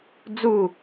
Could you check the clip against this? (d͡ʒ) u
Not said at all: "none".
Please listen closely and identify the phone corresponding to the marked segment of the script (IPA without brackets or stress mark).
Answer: d͡z